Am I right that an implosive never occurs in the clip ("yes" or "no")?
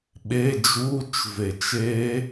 no